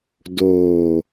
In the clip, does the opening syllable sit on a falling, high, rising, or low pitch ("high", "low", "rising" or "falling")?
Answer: low